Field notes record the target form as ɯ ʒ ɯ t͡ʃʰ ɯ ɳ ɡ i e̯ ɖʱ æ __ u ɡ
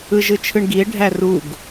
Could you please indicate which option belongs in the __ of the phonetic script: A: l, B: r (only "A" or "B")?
B